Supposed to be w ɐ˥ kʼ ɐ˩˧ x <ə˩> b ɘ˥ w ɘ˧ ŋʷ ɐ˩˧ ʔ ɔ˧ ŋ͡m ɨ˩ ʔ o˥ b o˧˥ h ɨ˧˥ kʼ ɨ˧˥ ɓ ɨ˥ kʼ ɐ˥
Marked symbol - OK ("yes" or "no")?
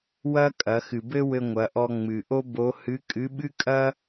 no